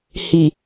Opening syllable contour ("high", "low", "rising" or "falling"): low